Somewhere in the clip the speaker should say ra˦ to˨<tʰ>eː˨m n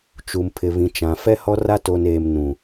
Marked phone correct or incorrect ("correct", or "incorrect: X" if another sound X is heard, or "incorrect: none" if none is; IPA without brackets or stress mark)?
incorrect: n